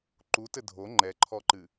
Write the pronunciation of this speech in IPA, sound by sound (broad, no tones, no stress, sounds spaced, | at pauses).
ǃ u t ɘ dʱ o ŋ͡ǃ ɛ ǃʰ ɔ ǃ ɨ